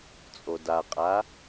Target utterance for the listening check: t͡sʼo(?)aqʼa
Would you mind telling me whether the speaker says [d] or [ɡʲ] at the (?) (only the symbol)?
d